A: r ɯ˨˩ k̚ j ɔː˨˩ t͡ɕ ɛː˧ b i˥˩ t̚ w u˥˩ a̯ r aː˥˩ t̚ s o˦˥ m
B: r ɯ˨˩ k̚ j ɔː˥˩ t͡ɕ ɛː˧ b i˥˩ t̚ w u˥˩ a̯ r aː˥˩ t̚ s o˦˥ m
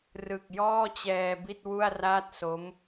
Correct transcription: B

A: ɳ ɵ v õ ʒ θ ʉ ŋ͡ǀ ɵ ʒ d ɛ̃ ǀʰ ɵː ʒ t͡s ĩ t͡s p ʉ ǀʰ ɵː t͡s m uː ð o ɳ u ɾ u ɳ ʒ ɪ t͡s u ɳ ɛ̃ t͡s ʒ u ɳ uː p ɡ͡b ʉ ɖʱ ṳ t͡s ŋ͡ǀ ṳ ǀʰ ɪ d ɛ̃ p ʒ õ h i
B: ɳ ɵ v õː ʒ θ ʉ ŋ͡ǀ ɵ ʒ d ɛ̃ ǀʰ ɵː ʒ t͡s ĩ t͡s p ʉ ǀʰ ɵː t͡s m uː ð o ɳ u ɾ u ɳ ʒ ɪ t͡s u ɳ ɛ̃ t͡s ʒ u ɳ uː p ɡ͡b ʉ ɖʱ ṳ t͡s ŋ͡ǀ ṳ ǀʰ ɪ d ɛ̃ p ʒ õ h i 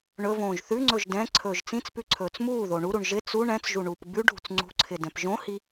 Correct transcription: B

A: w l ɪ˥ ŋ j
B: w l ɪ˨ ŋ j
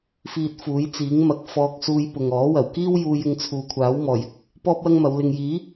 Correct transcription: B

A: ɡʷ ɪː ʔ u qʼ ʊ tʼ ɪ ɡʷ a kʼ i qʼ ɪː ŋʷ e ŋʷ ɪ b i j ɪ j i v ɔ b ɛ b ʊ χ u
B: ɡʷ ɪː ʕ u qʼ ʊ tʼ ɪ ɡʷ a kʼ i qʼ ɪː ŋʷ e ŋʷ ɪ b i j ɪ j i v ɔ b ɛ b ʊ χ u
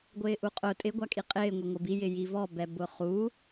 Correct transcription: A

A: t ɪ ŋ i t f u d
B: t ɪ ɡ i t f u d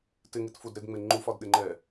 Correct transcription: A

